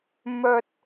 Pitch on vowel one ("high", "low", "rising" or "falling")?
low